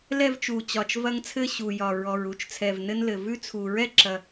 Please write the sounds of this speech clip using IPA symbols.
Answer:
l ɛ˥˨ v t͡ʃ u˨˩ t͡ɕ ɒ˨˩ t͡ʃ v ɐ˦ ŋ t͡sʰ ɘ˥˨ ɕ u˨˩ j ɒ˨˩ ɹ ɔ˨˩ ɹ u˥˨ t͡ʃ t͡sʰ ɛ˨˩ v n ɘ˦ n l ɘ˨˩ v ʉ˥˨ t͡sʰ u˨˩ ɹ ɛ˥˨ ǁ ɐ˨˩

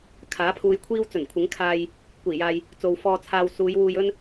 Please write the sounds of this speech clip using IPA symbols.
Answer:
kʰ aː˨˥ pʰ uː˧ j kʷʰ iː˥ w t͡s ɵ˨˩ n kʷʰ ɪ˨˥ ŋ kʰ aː˧ j | kʷ iː˨˩ j aː˨ j | t͡s o˨ w f ɔː˧ t͡sʰ aː˧ w s uː˨˧ j w uː˧ j ɵ˥ n

